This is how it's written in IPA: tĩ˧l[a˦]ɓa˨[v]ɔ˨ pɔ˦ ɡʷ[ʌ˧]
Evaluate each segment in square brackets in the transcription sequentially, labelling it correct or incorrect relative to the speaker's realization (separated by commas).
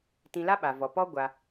correct, correct, incorrect